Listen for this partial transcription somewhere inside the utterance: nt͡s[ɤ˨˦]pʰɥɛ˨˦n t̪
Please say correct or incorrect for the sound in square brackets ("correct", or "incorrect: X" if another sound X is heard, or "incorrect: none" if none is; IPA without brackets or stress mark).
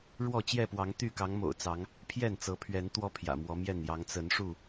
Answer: correct